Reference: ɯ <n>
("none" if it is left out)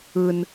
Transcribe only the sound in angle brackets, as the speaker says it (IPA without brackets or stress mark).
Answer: n